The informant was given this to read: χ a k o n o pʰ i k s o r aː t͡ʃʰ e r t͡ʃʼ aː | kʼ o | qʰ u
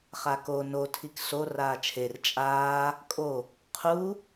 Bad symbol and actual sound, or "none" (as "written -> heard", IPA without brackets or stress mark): pʰ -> tʰ